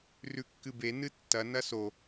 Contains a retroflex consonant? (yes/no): no